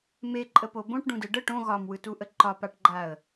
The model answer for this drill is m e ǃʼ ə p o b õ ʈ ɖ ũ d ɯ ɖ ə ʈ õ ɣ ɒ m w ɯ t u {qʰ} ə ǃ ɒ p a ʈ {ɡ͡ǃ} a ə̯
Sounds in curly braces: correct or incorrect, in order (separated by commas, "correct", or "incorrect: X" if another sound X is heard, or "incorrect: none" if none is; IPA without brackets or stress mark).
incorrect: ʔ, correct